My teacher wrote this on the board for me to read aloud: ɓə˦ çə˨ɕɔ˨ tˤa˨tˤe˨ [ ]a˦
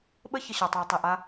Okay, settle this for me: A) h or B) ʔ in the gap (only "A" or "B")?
B